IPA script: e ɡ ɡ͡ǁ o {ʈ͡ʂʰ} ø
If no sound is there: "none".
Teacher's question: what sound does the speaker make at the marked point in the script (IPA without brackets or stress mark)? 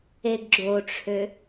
ʈ͡ʂʰ